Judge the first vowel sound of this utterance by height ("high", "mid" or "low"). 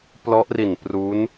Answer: mid